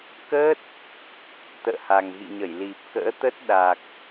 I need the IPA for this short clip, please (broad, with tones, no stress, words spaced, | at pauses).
kəː˦˥t̚ | t̪ə̰ː˧˨ha˨˩ŋɣḭ˧˨ɲə˧˩j li˨˩p̚ kə̰ː˧˥t̪ə˦˥t̚ɗa˨˩k̚